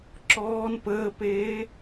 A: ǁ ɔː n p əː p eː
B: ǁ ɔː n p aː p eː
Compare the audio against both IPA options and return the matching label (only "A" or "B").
A